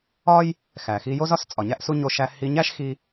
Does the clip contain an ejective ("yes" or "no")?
yes